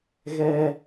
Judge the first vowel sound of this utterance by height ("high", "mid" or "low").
mid